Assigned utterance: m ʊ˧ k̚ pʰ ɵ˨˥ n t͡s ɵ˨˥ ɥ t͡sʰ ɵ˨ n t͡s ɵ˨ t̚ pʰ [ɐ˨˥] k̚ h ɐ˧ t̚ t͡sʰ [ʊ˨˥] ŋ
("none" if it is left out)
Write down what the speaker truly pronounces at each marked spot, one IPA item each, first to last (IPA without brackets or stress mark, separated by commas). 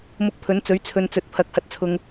ɐ˨˥, ʊ˧